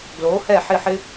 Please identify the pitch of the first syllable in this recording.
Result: rising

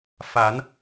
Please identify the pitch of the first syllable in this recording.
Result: rising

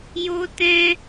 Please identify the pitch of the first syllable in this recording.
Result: high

